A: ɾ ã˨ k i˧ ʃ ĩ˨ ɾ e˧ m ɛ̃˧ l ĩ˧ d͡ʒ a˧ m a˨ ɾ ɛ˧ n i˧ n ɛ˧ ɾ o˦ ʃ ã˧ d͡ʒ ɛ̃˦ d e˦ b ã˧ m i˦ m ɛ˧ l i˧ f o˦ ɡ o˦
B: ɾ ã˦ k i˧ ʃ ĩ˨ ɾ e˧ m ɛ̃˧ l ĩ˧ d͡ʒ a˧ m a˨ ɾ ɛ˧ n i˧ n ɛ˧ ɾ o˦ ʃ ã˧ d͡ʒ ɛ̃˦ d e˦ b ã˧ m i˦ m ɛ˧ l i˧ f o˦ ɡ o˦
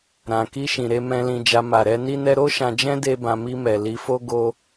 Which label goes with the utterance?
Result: A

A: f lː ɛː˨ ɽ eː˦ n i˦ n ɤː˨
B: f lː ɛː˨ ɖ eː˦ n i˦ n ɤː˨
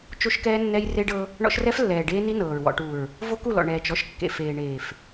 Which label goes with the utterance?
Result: B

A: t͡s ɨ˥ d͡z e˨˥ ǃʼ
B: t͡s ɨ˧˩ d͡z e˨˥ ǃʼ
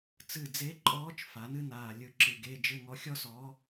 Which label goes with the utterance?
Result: B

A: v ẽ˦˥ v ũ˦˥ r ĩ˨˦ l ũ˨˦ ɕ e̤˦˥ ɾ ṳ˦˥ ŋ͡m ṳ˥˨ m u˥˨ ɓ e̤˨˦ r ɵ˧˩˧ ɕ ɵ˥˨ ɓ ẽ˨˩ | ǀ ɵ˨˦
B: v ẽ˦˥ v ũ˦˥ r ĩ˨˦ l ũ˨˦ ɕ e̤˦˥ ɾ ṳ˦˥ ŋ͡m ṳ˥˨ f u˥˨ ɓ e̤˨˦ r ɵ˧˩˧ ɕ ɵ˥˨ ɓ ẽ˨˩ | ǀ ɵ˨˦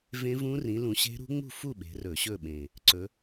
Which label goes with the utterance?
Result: B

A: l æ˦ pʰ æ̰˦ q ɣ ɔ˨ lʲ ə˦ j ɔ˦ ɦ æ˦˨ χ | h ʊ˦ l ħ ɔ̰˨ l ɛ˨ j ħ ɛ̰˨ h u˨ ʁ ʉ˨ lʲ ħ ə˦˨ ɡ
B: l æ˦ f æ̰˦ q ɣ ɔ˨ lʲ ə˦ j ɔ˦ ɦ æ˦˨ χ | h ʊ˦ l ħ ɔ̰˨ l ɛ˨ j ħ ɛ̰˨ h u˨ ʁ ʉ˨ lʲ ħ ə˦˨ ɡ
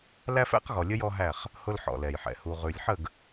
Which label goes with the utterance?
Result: B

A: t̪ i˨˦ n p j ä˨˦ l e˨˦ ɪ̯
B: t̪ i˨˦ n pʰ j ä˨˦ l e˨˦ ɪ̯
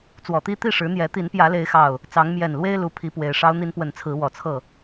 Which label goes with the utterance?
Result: A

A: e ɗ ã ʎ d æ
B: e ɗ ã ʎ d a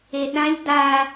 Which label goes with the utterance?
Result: B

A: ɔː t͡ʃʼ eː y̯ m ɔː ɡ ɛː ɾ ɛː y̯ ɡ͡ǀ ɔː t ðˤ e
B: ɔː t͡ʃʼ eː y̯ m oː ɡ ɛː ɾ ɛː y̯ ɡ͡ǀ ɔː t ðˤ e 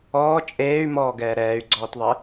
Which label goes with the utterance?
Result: A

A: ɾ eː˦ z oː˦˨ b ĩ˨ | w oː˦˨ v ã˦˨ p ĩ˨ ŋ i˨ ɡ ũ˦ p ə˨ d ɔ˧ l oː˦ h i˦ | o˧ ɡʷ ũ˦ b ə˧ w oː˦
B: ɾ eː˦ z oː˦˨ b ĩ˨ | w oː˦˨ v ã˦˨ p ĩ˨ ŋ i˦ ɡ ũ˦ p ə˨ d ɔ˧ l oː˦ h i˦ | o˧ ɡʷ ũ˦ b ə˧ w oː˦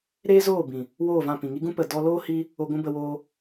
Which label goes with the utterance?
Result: B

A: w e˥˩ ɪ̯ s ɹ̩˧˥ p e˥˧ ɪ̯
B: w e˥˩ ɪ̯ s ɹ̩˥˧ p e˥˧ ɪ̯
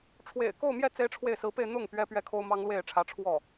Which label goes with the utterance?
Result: A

